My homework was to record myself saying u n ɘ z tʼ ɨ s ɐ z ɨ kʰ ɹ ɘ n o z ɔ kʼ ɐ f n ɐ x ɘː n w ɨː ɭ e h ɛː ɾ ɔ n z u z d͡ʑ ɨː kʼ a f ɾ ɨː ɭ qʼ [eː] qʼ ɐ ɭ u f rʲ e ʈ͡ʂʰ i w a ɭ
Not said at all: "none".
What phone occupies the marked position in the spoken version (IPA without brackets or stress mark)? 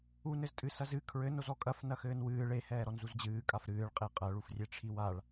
e